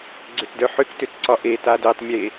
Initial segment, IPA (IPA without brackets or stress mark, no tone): ɡ͡ǀ